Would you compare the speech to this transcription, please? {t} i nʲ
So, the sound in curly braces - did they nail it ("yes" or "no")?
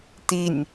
yes